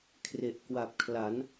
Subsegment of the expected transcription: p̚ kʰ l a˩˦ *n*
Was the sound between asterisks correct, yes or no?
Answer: yes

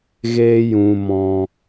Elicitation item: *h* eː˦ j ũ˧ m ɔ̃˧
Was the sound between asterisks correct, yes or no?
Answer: no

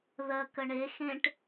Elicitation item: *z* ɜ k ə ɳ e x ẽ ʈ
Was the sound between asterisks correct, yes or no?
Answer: no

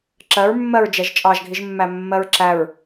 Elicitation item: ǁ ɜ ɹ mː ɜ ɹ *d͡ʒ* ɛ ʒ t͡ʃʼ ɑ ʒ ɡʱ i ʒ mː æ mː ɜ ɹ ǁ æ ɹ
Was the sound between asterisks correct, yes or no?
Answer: yes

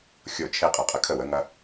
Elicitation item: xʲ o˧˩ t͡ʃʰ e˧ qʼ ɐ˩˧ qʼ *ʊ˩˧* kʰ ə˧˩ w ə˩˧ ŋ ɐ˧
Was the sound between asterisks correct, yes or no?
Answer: no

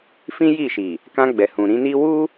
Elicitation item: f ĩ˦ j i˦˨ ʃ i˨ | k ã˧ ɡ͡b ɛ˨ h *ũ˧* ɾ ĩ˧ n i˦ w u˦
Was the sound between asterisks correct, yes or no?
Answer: no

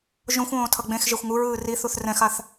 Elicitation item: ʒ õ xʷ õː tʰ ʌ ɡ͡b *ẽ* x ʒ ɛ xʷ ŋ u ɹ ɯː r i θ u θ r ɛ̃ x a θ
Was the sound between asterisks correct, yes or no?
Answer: yes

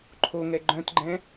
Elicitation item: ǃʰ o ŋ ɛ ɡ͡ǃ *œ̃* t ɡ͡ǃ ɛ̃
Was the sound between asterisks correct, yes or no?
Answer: yes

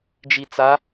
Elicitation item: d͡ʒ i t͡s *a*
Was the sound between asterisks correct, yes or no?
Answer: yes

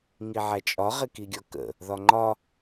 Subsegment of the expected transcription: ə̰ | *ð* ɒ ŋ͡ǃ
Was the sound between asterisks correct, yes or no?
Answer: yes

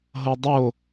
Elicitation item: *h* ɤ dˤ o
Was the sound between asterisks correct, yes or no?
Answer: no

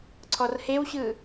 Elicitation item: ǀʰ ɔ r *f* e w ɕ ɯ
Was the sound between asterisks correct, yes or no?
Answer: no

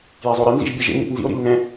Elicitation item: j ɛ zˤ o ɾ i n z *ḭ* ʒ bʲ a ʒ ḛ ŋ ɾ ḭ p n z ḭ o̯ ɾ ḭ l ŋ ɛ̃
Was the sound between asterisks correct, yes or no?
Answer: yes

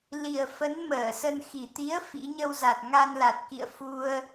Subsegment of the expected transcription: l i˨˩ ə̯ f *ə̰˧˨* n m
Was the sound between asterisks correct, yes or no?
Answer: no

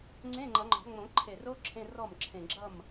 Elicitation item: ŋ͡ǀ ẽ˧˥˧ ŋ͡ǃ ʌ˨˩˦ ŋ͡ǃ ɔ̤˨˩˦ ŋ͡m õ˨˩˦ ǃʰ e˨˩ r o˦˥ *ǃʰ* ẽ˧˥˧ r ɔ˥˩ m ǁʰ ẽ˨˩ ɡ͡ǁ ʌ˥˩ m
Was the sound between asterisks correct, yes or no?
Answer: no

